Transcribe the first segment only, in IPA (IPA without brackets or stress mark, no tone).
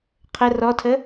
qʰ